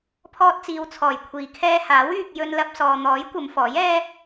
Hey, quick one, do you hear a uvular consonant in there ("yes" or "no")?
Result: no